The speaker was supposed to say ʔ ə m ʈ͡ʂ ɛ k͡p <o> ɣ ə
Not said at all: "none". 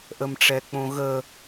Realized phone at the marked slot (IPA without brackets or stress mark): õ